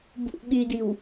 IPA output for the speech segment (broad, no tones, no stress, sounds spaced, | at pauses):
b ṵ ɠ y d i w